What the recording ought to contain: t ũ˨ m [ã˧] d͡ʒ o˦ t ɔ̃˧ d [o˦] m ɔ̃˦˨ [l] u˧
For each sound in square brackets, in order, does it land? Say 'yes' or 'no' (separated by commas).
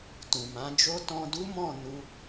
no, no, no